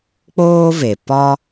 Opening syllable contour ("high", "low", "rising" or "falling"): high